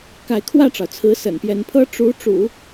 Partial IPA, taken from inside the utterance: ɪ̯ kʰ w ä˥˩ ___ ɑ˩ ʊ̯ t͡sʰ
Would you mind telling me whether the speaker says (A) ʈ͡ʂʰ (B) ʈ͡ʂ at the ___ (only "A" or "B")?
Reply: B